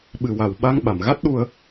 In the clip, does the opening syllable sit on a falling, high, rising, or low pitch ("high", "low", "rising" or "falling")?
low